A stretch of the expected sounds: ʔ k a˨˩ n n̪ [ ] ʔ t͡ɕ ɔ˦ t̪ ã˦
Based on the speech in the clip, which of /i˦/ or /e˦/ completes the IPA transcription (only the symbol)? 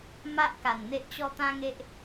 e˦